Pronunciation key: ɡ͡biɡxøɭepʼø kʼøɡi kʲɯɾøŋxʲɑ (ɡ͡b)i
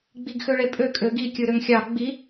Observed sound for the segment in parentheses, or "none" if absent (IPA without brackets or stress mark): ɡ͡b